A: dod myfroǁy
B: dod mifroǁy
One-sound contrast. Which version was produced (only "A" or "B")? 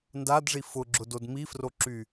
B